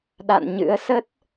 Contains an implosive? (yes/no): yes